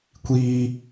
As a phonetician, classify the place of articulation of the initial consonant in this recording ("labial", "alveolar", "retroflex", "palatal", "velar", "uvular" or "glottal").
velar